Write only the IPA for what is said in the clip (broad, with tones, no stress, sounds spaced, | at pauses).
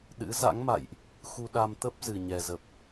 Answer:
ɗ ɨ̰˧˥ z a̰˧˥ ŋ m a̰˧˨ j ʔ | x u˧ ɗ a˧ m t̪ ə˦˥ p̚ z ɨ˨˩ ɲ ɛ˨˩ z ə˨˩ p̚